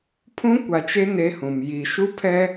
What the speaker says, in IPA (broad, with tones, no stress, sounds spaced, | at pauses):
pʰ ũ˦ kʷ a˨ t͡ʃ e˦ n e˦ h ũ˨ m j i˨ ʃ u˦ pʰ ɛ˦